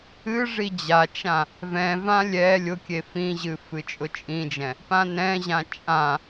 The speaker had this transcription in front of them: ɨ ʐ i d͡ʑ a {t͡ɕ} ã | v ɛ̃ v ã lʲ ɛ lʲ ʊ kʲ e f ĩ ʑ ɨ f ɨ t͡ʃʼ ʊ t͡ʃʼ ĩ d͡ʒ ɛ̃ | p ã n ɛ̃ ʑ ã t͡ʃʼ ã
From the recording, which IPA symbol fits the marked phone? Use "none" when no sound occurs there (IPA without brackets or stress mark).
t͡ʃ